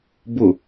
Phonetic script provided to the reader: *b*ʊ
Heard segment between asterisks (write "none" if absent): b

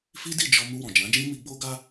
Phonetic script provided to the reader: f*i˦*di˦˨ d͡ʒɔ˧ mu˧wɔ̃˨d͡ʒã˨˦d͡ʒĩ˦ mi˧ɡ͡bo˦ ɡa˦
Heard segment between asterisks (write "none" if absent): i˦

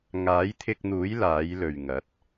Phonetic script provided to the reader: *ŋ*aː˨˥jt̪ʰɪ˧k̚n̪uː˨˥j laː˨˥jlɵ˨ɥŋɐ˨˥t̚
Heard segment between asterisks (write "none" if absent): ŋ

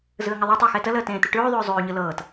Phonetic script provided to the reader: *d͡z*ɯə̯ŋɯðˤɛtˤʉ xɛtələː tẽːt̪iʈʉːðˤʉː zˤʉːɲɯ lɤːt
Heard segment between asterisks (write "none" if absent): z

